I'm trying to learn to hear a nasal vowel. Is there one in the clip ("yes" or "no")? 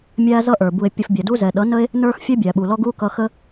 no